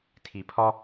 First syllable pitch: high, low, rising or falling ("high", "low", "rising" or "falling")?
low